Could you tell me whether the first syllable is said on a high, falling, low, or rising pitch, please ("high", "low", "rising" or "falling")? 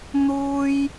high